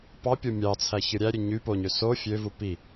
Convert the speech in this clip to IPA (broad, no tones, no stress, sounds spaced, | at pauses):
p ɑ pʲ o mʲ ɑ t͡sʰ æ ç ɯ ɾʲ æ ɾʲ ø ɲ y p o ɲ ø s o fʲ ø v u p i